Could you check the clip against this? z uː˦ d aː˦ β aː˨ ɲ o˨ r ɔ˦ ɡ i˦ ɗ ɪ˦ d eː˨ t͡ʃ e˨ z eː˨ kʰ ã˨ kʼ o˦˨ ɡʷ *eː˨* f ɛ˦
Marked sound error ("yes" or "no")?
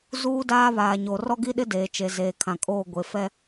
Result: yes